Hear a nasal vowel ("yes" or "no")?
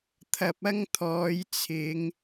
no